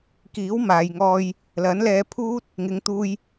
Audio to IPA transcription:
kiː˨˥wmaː˨jŋɔː˧j | lɐ˨˥nlɛː˧pʰuː˥t̚ | ŋɪ˨˧ŋt̪uː˧j

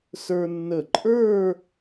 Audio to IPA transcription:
sə˞˧nːə˧˩ ǃʼə˞˥˧

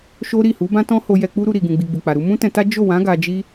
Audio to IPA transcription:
ʃo˦ɾi˦˨ hu˨˦bã˦tɔ̃˦ho˧ jɛ˧k͡pu˦ɾu˧ ɾi˨ɡũ˨ɡ͡bi˨ ɡ͡bu˨k͡pa˨ ɾu˧mũ˦tɛ̃˧ta˦ d͡ʒo˦˨wã˨˦ ɡa˧d͡ʒi˦

